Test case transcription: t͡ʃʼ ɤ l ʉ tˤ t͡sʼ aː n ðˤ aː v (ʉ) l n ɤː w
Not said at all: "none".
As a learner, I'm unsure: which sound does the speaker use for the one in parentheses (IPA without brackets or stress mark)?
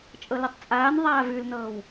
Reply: ʉ